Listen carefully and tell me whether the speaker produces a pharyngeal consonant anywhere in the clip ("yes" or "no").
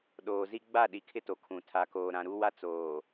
no